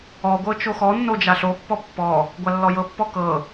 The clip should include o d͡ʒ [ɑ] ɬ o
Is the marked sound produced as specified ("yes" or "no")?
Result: no